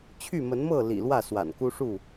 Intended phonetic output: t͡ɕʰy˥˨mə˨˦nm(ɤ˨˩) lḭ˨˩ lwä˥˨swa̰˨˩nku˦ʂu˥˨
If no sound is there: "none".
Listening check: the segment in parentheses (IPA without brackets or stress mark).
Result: ɤ˥˨